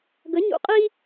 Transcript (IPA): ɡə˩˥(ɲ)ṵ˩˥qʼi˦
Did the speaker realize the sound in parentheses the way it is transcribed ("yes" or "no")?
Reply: yes